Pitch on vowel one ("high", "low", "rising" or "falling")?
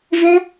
high